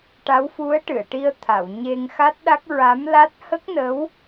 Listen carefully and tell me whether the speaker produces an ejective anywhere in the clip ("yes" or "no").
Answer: no